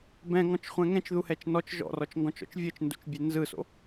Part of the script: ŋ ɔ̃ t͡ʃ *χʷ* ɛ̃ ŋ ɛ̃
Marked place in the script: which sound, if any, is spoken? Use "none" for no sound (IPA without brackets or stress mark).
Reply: χʷ